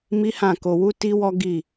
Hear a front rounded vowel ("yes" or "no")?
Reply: no